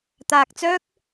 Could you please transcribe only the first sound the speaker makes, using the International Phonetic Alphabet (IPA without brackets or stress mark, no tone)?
t̪